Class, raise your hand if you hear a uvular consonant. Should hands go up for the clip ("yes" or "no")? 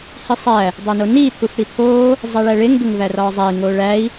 no